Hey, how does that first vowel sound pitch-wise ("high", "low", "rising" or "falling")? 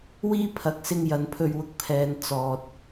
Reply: high